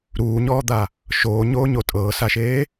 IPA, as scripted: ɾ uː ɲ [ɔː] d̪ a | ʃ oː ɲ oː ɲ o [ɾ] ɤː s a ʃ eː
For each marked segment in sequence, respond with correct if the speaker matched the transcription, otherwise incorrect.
correct, incorrect

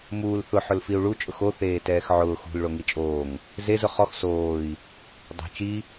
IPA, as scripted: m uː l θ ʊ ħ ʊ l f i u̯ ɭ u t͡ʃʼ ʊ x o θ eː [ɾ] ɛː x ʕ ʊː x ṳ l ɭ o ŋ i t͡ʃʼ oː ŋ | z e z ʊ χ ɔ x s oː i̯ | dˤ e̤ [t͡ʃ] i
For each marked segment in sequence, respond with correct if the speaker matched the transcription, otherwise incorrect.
incorrect, correct

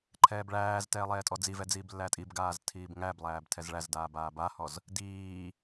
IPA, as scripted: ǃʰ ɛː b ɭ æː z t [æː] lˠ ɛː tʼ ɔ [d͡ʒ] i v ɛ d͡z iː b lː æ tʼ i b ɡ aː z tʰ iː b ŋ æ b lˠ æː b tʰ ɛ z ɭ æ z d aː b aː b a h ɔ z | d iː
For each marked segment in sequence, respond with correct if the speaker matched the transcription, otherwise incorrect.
incorrect, incorrect

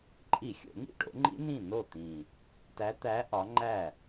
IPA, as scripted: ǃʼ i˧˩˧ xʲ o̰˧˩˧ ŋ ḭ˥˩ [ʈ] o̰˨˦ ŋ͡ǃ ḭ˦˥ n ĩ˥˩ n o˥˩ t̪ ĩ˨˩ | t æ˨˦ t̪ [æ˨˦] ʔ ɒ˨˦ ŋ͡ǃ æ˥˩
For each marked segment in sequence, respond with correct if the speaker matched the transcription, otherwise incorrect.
correct, correct

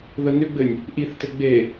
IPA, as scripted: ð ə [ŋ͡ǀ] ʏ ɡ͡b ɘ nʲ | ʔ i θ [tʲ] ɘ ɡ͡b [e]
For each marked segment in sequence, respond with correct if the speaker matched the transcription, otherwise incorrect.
incorrect, incorrect, correct

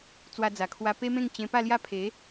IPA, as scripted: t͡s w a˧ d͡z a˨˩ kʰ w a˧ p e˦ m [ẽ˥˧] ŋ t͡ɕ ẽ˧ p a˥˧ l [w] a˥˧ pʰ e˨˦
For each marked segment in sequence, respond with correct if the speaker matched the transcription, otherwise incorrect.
correct, incorrect

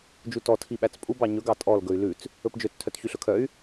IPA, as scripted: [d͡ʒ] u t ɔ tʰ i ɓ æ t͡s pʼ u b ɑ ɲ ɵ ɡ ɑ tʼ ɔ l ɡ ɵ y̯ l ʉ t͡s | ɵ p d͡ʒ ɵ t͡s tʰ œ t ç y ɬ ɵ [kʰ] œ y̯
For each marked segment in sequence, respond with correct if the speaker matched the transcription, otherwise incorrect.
correct, correct

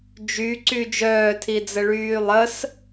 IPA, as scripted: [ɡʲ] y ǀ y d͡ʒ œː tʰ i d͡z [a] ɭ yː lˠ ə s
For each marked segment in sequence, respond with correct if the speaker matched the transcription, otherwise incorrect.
incorrect, incorrect

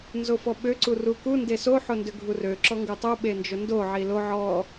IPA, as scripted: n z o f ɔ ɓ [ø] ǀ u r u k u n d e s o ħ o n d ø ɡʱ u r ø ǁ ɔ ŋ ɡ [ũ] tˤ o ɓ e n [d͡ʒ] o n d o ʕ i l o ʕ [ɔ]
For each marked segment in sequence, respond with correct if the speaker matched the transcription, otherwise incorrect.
correct, incorrect, correct, correct

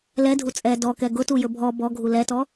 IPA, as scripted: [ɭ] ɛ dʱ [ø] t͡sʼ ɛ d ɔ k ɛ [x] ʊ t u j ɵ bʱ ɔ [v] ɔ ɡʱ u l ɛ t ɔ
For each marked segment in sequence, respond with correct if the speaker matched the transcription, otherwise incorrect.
incorrect, incorrect, incorrect, incorrect

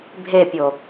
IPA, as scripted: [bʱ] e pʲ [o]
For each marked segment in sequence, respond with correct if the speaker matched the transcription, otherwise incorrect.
correct, correct

